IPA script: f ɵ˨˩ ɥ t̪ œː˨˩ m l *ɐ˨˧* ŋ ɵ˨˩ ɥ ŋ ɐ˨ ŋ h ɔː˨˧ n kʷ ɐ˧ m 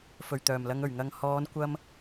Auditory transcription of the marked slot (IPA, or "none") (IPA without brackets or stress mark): ɐ˨˧